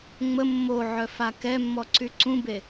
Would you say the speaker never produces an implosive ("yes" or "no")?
yes